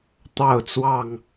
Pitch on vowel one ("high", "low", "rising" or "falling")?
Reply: falling